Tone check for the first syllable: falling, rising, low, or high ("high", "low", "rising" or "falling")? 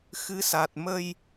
rising